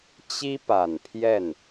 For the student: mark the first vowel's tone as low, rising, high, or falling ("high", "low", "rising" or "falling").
high